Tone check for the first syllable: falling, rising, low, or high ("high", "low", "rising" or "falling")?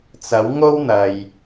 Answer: rising